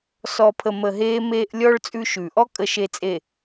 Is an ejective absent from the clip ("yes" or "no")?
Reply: no